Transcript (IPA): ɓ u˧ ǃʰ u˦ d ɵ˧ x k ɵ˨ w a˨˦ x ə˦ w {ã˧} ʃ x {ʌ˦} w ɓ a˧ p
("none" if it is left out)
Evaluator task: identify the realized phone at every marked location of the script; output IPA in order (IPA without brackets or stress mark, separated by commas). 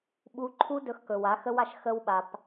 a˧, ə˦